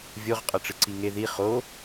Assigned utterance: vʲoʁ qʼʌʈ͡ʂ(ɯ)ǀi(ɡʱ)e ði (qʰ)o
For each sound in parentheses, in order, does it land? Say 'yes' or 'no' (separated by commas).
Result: yes, no, no